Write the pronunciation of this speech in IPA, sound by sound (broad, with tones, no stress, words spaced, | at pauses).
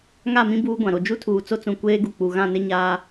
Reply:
ŋa˦˨mĩ˦ buː˦ɡʷã˨ ɾo˨d͡ʒu˦tʰuː˨ t͡so˦t͡sũ˨ kʷeː˦ɡu˨ k͡pu˨ ɣã˦˨nɪ˦ ɲaː˦